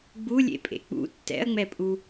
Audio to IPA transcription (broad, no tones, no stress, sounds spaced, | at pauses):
ɡ͡b u lʲ ḛ pʼ ḛ k͡p ṵ tː ɛ̰ ɐ̯ ŋ͡m ɛ pʼ u